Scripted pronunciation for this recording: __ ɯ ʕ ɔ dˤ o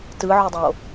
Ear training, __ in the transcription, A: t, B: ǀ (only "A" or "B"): A